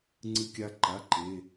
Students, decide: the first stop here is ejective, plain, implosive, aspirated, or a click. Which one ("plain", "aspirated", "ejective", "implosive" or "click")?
click